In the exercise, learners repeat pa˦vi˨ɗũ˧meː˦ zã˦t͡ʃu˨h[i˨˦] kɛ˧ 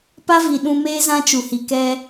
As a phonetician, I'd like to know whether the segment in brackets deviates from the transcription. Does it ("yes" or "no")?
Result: yes